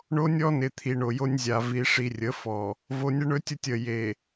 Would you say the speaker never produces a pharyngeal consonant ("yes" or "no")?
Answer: yes